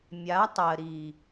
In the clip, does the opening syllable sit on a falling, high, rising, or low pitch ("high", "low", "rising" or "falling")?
rising